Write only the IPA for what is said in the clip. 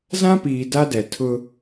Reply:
z ã˦ p iː˨ d a˦ d ɛ˨ tʰ ʊ˦

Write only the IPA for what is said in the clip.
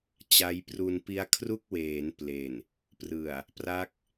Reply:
t͡ɕ a˦˥ j p r u˧ n p i˦˥ a̯ kʰ r u˥˩ k̚ w eː˩˦ n p l e˨˩ n | p r ɯ˨˩ a̯ | p r a˦˥ k̚

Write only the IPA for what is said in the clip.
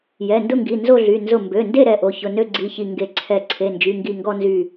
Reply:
j ɛ˩˧˩ n d ʊ˥˧ ŋ ɡ i˩˧˩ n z o˥˧ ɮ y˩˧˩ n z ʊ˧˩ m b ø˩˧˩ n d e˥˧ ɾ ɛ˩˧˩ ʔ o˩˧˩ ç ʊ˩˧˩ n ø˥˧ ɡ͡ǀ i˩˧˩ ç i˧˩ ŋ ɡ e˧˩ ǀʰ ɛ˧˩ ǀʰ e˩˧˩ n d͡ʒ y˩˧˩ ŋ ɡ i˧˩ ŋ ɡ ɔ˥˧ n z y˧˩

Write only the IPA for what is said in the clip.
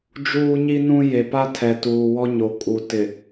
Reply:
d͡ʒ uː˦ ɲ i˦ n ũ˦ j e˨ p a˦ tʰ ɛ˨ t uː˨ w ɔ˦ ɲ o˨ kʼ u˨ t ɪ˨

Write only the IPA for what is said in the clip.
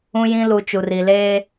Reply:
ũ˦ j ĩ˦ l u˨ t͡ʃ u˨ r i˨ l eː˦

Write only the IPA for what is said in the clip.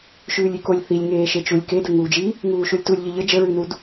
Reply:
ʃ ʉː lʲ y k o lʲ θ i lʲ ŋ eː ʃ e t͡ʃ u lʲ k e d ə ŋ uː d͡ʒ i | ŋ uː ʃ u lʲ t u lʲ ʎ ə ʎ ə d͡ʒ ə ɹ ʉ n u d

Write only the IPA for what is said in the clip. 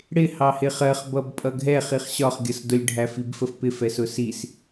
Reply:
ɽ ɪ h ɑ h ɪ χ ɜ χ b ʌ b pʼ ʌ ɡʱ ɛ χ i χ ɕ ɒ χ ɡʲ ʌ s d ʊ lʲ ɖʱ æ f i b f ə f p ɪ f ɛ s ʊ s i s

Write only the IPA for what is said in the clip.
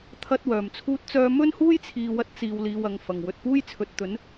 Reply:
t̪ʰ ɐ˥ t̚ w œː˨˩ m t͡sʰ uː˥ t̚ t͡s œː˥ m ɵ˥ n h uː˥ j t͡sʰ iː˨ w ɐ˧ t̚ t͡s iː˨ w l iː˨ w ɐ˨ ŋ f ɐ˨˩ ŋ w ɵ˨ t̚ p uː˥ j t͡sʰ ɵ˨ t̚ t̪ ɵ˨˥ n

